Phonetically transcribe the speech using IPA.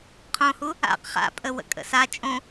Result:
qʰ õ h u | a̰ q χ a̰ pʼ ə w ə̰ kʼ ə̰ s a t͡ʃʼ õ

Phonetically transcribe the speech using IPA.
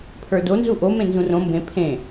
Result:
pʰ ə˞ d o n z u ʔ o m ẽ n z ũ r õ m b ẽ pʰ ẽ

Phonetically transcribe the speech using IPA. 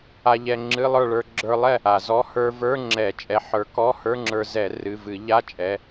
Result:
a˧ ʎ ɛ˧ ŋ͡ǁ ɨ˧˥˧ lˠ ə˞˥˨ ɭ ə˞˧ ɡ͡ǁ ə˞˧ lˠ ɛ˥˨ | a˧˩˧ z ɔ˧˥˧ h ə˞˧ v ə˞˧˥˧ ŋ͡ǁ ɛ˧˩˧ t͡ʃʼ ɛ˨˥ ħ ə˞˨˥ k ɔ˧˥˧ h ə˞˧˥˧ ŋ͡ǁ ə˞˧ z ɛ˧˩˧ r ɨ˩˧˩ v ɨ˧˩˧ ʎ a˧˥˧ t͡ʃʼ ɛ˩˧˩

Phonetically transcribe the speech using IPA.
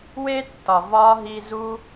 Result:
w e˥ tː ɒ˨ v ɒ˦ ɦ i˦ z u˦

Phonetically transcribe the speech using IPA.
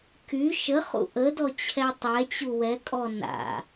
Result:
k y ʃ ə χ ṵ ʔ ə d ɔ t͡ɕʰ ɛ tˤ ɛ t͡ɕ u w ɛ kʼ ɔ n a̰

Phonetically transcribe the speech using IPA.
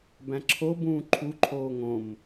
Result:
b æ̃ ǁʰ o b ũː ǃʰ u ǃʰ oː ŋ õ m

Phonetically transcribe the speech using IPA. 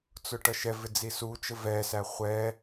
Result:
t͡s ʊ ʈ ʌ ʃ ɛ v ɪ d͡z i s u t͡ʃ ə v ɛ s æ χʷ ɛ

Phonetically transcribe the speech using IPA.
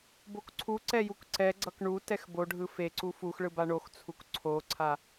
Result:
b o k ǀʰ u ǀ ɛ j u k ǀ ɛ ɡ͡ǀ ʌ k ɳ u t ɛ x b o ɖʱ ɯ f e ǀ u f u x ɭ ɯ b a ɳ o x t͡sʰ u k ǀʰ o ǀʰ a

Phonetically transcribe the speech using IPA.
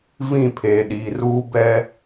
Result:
v ĩ˦˨ pʰ eː˨ ɗ iː˨ r uː˦ b ɛ˦

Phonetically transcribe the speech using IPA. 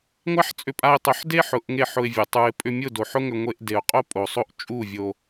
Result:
ŋʷ a˦ ħ t͡sʼ ʏ˧ pʼ a˧ ɪ̯ tˤ ʊ˨˦ ħ d e˦ ħ ʊ˨ ʔ ŋ e˦˨ ħ ʊ˧ ɪ̯ vʲ ʊ˨ tˤ u˨ ɪ̯ pʼ ʏ˧ mʲ ʊ˦˨ d o˨ ħ ʊ˦ ŋ ʏ˧ ŋʷ e˧ ʔ d e˨ ʊ̯ qʼ o˦ pʼ o˨ sˤ o˦ ʔ t͡ʃʼ u˦˨ vʲ o˧

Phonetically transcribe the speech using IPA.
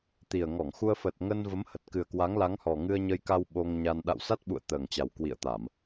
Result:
t̪ i˨˩ ə̯ ŋ ɔ˧˩ ŋ x u˧ ə̯ f ə˨˩ t̚ ŋ ə˧ n v ə˨˦ m h ə˨˩ t̚ k ɨ˨˩ ə̯ k w a˨˦ ŋ l a˨˦ ŋ h ɔ˨˩ ŋ ɨ˧ ə̯ ɲ ə˧ j k a˧ w ɓ o˧ ŋ ɲ a˧ n ɗ a̰˧˨ w s a˦˥ t̚ ɓ ṵ˧˨ ə̯ t̪ əː˨˩ ŋ t͡ɕ a˨˩ w k w ḭ˧˨ ə̯ t̪ a˧˩˨ m

